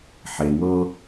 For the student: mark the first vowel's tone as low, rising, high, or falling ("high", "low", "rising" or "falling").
low